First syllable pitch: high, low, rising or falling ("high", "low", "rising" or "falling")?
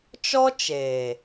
high